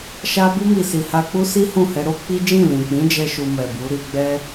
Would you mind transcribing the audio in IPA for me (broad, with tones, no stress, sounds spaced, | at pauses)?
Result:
ʃ a˧ b u˧ m i˨ s i˨ h a˧ k͡p u˦ s i˦ h ũ˦˨ h ɛ˧ ɾ o˦ k͡p i˦ d͡ʒ ĩ˦˨ l ĩ˨ k͡p ĩ˨˦ d͡ʒ ɛ˦ ʃ u˧ m ɛ˨ b u˨˦ ɾ i˧ ɡ͡b ɛ˦